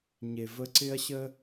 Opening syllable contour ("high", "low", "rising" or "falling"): low